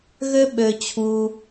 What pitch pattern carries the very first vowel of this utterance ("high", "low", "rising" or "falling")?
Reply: high